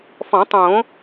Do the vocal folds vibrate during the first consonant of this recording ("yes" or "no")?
no